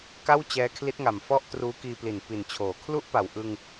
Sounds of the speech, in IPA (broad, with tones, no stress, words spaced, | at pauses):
ka˥˩wt͡ɕɛː˦˥kʰli˦˥t̚ŋa˨˩m fɔ˥˩ʔtruː˦˥kiː˧pli˨˩n pi˨˩nt͡ɕʰoː˩˦ kʰlu˥˩ʔpa˨˩w ʔɯ˧ŋ